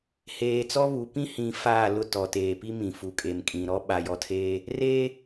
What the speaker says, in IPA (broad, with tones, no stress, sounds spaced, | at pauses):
h eː˨ t͡s ɔ˦ β u˨ p ĩ˦ h ĩ˨ f aː˦˨ l ʊ˦ t ɔ˨ t eː˨ p i˦ m ĩ˨ f u˨ kʼ e˨ m kʼ ĩ˨ ɾ ɔ˦ ɓ a˨ j ɔ˨ tʰ eː˦ | r eː˦